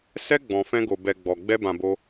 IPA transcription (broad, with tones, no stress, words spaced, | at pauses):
sɛ˧ ɡ͡bɔ̃˨fɛ̃˧ɡo˨bɛ˨ ɡ͡bɔ˨ ɡ͡bɛ˧bã˨bo˧